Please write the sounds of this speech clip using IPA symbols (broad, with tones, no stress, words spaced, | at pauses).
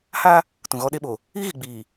ha˦ | tũ˨ɣɔ˦ɗe˦ɓo˨ | i˦ɣi˨ɡ͡biː˨